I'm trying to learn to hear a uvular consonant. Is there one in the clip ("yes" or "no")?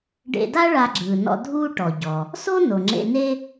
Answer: no